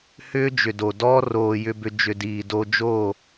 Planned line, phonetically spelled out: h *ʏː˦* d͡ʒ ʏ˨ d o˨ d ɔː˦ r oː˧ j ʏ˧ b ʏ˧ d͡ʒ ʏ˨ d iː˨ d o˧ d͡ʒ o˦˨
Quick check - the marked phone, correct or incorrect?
correct